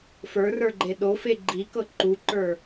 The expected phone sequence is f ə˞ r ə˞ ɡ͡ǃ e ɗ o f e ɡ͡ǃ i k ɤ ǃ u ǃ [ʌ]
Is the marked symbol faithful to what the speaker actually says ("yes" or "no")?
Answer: no